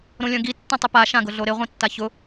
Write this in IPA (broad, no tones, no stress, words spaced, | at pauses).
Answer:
ɾõlʲœ̃ɡi tːãtˤɪpa ʃãɡʊɮoɾɪ ʁʷĩtːaçʊ